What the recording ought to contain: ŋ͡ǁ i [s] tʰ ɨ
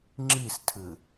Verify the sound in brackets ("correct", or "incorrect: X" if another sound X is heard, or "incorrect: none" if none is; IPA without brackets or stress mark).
correct